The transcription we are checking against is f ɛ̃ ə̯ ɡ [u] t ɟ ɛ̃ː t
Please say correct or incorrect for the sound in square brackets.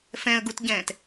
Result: correct